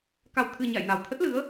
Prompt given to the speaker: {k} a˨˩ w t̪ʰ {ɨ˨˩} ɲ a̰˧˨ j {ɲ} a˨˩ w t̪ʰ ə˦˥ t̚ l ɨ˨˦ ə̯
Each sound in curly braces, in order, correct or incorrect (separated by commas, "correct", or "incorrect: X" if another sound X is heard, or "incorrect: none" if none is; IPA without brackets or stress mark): correct, correct, incorrect: n